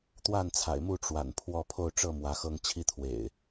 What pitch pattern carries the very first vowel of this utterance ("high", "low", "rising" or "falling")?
falling